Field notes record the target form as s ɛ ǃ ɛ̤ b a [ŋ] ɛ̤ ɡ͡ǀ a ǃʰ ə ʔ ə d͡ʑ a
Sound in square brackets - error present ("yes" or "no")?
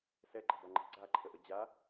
yes